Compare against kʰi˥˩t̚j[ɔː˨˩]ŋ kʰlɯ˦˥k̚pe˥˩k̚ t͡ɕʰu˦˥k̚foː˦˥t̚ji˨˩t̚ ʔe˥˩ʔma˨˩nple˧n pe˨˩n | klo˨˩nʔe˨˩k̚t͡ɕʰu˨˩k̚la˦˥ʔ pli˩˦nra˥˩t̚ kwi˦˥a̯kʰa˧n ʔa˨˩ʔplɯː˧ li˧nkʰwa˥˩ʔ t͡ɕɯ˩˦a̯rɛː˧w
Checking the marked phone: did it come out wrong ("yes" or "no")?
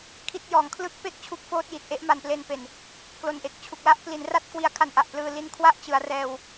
no